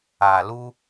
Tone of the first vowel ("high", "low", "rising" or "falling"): low